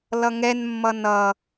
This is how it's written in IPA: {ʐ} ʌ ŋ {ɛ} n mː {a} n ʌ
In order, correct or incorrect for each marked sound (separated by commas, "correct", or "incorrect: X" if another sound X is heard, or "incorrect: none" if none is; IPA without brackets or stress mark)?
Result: incorrect: l, correct, incorrect: ʌ